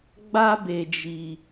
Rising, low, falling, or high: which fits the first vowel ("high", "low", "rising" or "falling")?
high